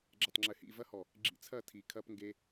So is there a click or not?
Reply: yes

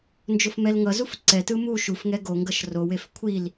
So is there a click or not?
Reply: yes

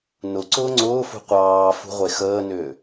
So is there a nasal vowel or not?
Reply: no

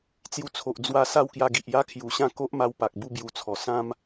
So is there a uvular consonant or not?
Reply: no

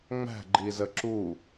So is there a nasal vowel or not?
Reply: no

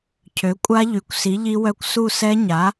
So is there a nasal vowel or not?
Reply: no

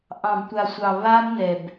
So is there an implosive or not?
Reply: no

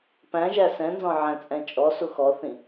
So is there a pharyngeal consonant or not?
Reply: yes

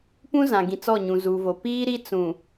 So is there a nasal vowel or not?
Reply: yes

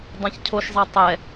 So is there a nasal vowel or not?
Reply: yes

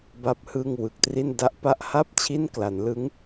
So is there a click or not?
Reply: no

